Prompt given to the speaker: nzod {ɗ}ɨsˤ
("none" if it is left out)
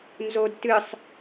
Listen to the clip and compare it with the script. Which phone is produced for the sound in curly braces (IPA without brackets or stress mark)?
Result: t